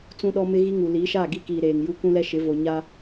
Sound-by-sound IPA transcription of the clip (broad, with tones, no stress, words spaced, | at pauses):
t͡sũ˦ɗɔ˦ mɪ˦ɣi˦ŋu˨ liː˨˦ʃaː˦˨ɡi˦kiː˨ ɾeː˨ŋju˦ kũ˦lɛ˦ ʃɪ˨˦vo˨ ɲa˦